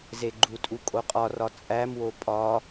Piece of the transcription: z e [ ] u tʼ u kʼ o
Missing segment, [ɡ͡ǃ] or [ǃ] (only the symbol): ɡ͡ǃ